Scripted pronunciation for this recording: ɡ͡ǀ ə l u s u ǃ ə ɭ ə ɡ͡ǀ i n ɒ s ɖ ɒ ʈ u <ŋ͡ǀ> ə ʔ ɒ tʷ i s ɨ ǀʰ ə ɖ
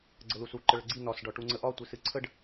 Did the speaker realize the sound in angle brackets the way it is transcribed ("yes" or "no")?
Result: yes